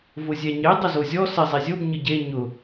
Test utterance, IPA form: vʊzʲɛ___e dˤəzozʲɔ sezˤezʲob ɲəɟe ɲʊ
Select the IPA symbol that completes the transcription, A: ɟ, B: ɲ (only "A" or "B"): B